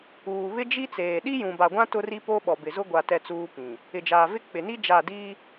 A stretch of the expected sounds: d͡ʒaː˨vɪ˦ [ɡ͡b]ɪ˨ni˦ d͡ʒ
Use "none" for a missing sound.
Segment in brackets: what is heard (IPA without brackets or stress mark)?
k͡p